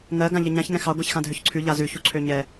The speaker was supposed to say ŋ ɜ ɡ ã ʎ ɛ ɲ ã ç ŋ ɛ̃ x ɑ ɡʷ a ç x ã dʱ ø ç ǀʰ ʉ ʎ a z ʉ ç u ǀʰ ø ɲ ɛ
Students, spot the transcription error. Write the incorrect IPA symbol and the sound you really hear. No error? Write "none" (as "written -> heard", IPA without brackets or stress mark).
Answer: none